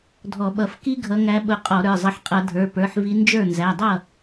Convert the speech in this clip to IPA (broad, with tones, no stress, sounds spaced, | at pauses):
dʱ ɔ˧˩˧ ɓ ʌ˧˩˧ f k i˦˥ ɡʱ ʌ˨˦ ŋ æ˨˦ ɓ ʊ˨˦ qʼ ɔ˧˩˧ ɾ ə˞˩˧˩ zˤ ʌ˨˦ ħ qʼ ʌ˧˩˧ dʱ ə˞˩˧˩ p ə˞˩˧˩ ħ v i˨˦ n d͡ʒ ə˞˥˩ n z æ˩˧˩ dˤ ʌ˥˩